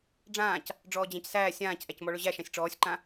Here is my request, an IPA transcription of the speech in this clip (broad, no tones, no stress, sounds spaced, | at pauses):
ɖ͡ʐ ãː c | ɖ͡ʐ ɔː d͡ʑ æ̃ c s æː sʲ ãː c ʔ æ c m ɔ ɭ ɵ ʑ æ ʃ ã sʲ ʈ͡ʂ ɔː sʲ ǃ ã